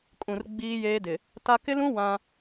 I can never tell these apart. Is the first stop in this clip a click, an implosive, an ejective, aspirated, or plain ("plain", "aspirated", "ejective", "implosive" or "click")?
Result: ejective